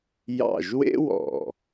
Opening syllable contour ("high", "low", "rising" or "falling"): falling